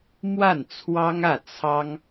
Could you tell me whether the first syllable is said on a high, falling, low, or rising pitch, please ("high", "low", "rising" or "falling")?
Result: falling